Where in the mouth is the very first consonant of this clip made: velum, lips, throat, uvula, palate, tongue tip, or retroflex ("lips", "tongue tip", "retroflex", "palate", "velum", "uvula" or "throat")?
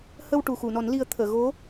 throat